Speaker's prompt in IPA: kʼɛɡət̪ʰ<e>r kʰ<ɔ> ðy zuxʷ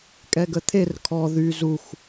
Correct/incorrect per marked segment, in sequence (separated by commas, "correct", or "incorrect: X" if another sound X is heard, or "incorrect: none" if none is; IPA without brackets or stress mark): correct, correct